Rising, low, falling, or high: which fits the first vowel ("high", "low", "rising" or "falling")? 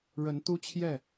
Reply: rising